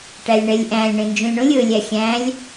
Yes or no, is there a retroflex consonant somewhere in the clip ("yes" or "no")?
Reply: yes